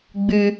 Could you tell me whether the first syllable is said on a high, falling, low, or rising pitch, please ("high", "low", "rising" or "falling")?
high